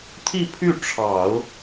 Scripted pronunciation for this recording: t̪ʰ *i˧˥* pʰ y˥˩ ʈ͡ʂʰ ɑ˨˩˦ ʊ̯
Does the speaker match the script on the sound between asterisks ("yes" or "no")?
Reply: no